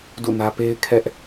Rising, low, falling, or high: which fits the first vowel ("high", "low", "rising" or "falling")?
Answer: falling